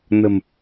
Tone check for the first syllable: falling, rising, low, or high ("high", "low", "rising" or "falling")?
low